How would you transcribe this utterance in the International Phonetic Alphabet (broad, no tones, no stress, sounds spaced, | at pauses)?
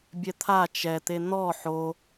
bʲ ɛ t̪ʰ a t͡ʃ ɛ t̪ e n̪ ɔ ħ o